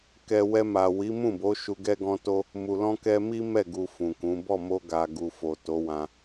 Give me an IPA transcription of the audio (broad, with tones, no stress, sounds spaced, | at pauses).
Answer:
k ɛ˨ w ɛ˧ m a˨ w i˨˦ m ũ˦˨ b o˨˦ ʃ u˧ ɡ ɛ˦ ɡ ɔ̃˦ t o˦ | m u˨ l ɔ̃˧ k ɛ˧ m i˦ m ɛ˦˨ ɡ u˨ f ũ˨ k ũ˨˦ b ɔ˦˨ m o˧ ɡ a˨ ɡ u˨ f o˨ t o˨˦ w ã˧